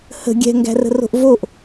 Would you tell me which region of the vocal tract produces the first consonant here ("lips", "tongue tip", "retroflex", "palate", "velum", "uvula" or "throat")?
throat